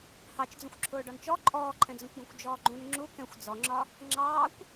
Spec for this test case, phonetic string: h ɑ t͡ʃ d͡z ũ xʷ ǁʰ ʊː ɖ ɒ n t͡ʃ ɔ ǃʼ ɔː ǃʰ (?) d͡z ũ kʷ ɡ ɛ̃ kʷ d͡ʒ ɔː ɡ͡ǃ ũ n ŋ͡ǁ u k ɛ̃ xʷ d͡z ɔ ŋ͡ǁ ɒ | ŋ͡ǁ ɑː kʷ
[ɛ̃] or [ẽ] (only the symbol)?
ɛ̃